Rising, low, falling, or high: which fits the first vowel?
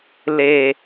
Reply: low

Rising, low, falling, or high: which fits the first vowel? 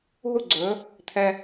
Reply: high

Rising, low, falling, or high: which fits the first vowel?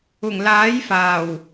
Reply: low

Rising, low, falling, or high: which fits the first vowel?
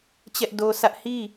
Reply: high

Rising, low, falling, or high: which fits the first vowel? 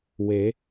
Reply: rising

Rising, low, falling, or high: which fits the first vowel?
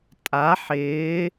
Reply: rising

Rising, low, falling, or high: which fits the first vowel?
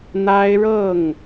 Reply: high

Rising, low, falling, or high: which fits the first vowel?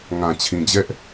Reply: low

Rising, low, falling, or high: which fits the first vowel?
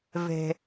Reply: high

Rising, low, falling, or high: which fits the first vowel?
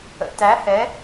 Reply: low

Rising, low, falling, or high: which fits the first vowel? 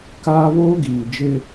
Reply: high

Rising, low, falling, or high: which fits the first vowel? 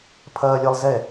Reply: high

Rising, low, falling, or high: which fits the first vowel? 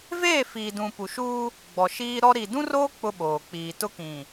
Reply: falling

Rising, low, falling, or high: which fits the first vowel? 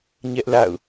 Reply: high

